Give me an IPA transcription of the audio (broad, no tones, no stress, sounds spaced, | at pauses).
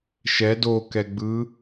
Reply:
ʃ ɛ d o k ɛ ɡ͡b ɯ